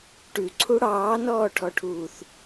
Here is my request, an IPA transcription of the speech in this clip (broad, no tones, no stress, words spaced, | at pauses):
ʈʉǀʰu ɽɑːnɔːʈʰɔʈʰuːθ